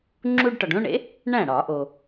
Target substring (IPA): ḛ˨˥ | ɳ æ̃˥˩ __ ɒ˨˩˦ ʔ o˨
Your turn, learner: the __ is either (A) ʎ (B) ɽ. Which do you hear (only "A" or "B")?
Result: B